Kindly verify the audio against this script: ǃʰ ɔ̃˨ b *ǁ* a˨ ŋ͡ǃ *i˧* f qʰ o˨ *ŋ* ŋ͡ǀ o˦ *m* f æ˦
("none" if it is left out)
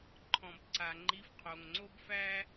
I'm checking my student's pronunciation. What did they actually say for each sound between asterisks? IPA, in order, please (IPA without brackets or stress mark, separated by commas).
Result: ǀ, i˧, ŋ, b